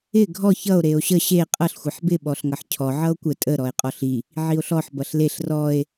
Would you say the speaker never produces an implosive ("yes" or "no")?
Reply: no